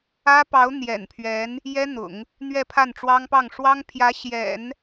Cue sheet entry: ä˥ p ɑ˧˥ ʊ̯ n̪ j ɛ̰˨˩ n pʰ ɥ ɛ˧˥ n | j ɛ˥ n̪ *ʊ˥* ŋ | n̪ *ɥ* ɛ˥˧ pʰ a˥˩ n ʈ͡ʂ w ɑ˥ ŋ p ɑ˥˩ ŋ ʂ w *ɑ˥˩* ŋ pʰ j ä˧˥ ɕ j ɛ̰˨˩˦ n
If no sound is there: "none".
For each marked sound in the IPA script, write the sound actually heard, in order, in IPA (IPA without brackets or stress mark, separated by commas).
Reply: ʊ̰˨˩˦, ɥ, ɑ˥